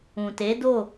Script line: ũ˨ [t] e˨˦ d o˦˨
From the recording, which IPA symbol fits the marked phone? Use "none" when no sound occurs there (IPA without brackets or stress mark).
t